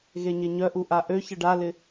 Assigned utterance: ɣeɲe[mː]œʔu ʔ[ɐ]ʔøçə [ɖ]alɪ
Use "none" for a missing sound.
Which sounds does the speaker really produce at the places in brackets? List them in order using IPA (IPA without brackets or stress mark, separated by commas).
ɲ, a, ɖ